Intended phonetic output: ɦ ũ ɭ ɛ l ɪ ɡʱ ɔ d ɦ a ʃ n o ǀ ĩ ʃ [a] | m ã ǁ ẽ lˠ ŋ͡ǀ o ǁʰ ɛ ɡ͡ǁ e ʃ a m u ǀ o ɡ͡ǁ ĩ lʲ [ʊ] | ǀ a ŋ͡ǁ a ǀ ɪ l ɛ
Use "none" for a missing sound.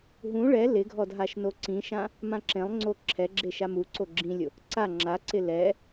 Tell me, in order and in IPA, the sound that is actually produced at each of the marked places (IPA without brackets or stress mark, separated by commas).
ã, ʊ